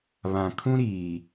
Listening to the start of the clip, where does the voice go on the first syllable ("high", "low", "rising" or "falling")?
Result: low